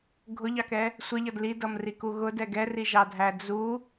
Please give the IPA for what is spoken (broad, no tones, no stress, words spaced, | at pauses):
ɡʱʊʎɑkɛ | sʷɪʎʌd lidʌmriku ɣʊdɛ ɡɛriʒɑdʱæ d͡zu